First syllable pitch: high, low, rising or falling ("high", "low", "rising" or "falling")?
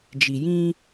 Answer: low